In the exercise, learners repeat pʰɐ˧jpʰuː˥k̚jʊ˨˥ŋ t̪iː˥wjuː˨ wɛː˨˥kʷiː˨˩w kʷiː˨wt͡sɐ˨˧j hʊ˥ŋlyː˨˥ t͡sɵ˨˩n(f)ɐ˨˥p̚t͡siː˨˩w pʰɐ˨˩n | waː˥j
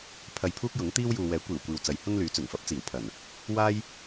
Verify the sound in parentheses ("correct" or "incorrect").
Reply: correct